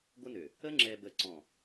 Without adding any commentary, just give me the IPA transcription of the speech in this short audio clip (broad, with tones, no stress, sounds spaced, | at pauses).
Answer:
ɡʷ ə˦ n ø˨ | ə˦ ŋ͡ǁ ɛ˨ b ə˨ ǀ ɔ̃˨